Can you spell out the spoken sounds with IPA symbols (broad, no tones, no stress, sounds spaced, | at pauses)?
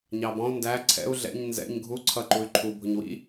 ɲ ɑ b ɔ̃ u̯ n d æ ǀʰ ɛ̰ u̯ ɮ ɛ̰ ɲ n z ɛ̰ ɲ ɡʱ u ǀʰ ʌ ǃ u y̯ ǃʰ u bʱ ʊ ɲ w ḭ